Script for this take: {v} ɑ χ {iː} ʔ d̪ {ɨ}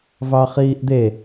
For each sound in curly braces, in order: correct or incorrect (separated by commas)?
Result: correct, correct, incorrect